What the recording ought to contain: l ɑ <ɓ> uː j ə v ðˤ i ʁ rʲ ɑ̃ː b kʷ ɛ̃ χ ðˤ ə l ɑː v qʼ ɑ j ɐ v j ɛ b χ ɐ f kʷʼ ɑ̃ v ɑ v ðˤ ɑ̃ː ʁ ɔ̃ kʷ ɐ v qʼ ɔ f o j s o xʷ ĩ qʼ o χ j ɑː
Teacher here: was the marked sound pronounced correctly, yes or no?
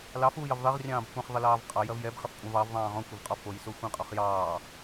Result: no